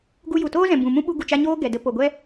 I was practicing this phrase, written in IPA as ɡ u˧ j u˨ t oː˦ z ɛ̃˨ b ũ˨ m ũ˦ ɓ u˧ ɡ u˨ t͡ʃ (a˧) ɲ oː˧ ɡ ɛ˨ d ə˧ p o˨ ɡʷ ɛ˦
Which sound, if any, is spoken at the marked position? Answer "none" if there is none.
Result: a˧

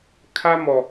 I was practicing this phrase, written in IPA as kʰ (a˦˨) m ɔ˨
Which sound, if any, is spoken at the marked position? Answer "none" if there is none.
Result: a˦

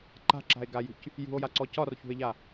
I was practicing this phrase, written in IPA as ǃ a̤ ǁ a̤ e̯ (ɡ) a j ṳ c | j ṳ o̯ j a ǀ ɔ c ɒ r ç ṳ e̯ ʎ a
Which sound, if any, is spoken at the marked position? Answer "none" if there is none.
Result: ɡ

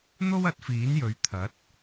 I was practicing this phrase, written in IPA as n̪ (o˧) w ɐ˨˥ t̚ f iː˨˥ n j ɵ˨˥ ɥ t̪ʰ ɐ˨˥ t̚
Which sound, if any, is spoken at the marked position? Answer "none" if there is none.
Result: o˥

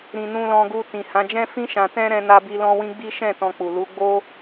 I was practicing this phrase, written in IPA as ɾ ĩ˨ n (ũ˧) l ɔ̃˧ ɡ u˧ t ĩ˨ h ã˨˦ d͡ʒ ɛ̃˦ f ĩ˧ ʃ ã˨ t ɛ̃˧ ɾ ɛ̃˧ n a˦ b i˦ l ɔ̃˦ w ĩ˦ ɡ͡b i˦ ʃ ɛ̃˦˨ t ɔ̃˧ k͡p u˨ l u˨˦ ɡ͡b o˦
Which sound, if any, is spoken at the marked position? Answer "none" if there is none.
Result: ũ˧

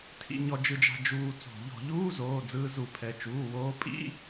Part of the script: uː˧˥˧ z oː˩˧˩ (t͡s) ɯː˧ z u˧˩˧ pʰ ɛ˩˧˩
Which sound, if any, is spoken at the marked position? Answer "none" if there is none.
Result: d͡z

